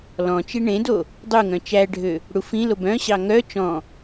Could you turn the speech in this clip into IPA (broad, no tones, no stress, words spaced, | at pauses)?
lɔ̃ t͡ʃiɳẽdo | dˤuŋœ̃ t͡ʃæɖʱø | ɽufĩlob œ̃ɕɑ ŋœ t͡ʃɔ̃